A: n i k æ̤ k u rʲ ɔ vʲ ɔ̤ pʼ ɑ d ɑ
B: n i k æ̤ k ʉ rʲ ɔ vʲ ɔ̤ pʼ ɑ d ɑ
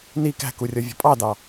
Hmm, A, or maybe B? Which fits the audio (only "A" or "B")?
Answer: A